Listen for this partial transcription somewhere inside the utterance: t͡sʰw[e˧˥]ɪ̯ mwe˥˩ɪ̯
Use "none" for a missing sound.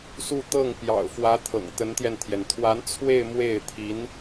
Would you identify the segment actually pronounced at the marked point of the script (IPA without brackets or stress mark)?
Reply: e˥˧